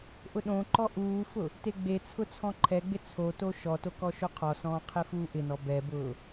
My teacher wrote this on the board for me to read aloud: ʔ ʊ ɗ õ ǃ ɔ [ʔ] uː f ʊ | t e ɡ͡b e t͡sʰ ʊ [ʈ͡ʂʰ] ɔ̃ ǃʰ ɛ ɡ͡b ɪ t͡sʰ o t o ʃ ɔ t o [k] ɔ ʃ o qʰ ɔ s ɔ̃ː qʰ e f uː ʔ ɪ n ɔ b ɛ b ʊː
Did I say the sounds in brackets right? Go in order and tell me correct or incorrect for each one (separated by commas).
correct, incorrect, correct